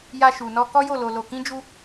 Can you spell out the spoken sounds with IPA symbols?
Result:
ja˧ʃu˨nɔ˧ kɔ˦jo˦˨lo˧lo˧ kĩ˦d͡ʒu˦

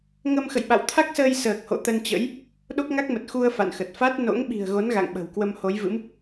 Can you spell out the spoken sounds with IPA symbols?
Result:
ŋə˧m xə̰˧˨jɓa̰˧˨wt̪ʰa˦˥k̚səː˧j səː˨˩k̚ho̰˧˨ t̪ə˧nt͡ɕə̰˧˥j | ɗo˦˥k̚ŋa˦˥k̚mə˨˩t̚ xu˧ə̯ fa̰˧˨nxə˨˩t̚ fa˦˥t̚ no̰˧˥ŋɓi̤˨˩ə̯ɣo˨˦n ɣa̰˧˨ŋɓə̤˨˩wkwə˧m ho˨˦jvɨ̰˧˥m

